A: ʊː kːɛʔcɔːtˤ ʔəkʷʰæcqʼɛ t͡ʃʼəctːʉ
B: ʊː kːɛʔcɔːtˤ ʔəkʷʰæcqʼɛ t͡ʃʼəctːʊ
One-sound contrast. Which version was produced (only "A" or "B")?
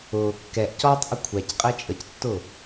B